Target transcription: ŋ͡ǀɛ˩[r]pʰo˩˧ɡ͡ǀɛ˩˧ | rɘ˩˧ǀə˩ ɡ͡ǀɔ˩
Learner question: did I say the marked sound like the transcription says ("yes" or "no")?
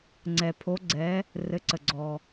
no